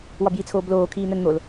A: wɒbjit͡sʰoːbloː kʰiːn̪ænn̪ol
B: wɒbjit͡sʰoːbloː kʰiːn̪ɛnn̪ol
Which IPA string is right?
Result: A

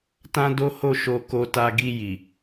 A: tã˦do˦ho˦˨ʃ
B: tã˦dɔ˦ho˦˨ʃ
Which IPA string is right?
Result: A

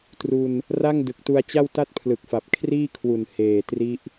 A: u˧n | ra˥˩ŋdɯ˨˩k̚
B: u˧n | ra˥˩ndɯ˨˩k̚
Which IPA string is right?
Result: A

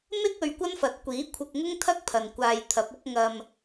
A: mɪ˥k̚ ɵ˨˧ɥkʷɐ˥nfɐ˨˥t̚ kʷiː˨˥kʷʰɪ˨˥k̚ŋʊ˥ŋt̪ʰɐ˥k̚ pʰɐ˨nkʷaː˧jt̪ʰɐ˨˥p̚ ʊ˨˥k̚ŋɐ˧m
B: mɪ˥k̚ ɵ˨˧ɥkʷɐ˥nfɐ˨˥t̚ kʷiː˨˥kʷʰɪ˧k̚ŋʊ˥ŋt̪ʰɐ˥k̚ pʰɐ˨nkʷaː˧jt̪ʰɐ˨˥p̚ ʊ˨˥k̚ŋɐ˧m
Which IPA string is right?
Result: B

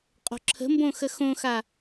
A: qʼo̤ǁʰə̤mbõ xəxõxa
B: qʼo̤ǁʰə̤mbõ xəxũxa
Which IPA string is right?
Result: A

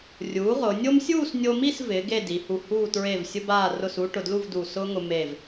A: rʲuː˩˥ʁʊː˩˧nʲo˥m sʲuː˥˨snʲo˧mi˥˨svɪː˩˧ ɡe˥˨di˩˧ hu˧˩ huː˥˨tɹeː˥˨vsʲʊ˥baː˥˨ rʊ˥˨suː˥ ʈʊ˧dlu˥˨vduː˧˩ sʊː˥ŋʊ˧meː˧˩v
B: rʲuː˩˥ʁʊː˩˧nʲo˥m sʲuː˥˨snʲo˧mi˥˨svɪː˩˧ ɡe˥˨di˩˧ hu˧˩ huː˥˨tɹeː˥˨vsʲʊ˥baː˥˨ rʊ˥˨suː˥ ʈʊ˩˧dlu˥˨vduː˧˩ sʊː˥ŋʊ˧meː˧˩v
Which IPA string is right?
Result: A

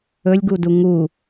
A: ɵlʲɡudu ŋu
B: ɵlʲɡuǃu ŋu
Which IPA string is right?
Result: A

